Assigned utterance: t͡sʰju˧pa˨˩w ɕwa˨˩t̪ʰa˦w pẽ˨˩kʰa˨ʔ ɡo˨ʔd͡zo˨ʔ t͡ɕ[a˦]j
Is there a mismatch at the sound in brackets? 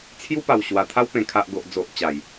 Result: yes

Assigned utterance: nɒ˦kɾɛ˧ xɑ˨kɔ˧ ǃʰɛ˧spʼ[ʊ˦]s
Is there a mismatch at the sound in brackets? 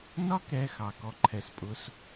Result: no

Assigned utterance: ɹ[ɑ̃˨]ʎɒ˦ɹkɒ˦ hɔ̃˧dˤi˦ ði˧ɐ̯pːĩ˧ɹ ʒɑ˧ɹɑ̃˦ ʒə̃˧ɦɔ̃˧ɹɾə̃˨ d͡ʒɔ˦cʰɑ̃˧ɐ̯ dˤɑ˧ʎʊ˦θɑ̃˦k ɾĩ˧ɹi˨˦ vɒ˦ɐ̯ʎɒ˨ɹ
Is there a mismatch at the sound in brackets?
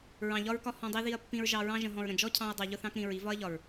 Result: no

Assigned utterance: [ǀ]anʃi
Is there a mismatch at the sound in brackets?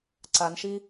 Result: no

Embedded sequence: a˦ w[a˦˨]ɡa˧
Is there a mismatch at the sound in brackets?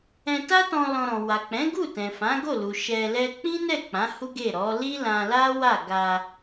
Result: no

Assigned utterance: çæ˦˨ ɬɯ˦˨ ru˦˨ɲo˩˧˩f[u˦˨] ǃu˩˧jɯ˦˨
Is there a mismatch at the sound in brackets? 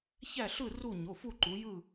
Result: no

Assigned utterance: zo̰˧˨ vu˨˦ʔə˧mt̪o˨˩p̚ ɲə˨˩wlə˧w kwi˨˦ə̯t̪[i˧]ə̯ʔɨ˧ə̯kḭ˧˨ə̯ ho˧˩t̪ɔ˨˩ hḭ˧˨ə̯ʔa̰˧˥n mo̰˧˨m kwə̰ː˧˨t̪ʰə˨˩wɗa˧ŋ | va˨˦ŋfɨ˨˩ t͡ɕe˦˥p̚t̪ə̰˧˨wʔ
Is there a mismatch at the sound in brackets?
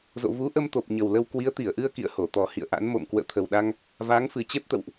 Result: yes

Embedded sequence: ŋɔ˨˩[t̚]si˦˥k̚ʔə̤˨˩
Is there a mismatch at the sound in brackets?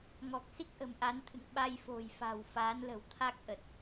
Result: yes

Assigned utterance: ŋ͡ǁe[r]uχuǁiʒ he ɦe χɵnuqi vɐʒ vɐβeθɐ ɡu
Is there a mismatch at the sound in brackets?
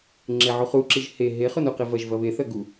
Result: yes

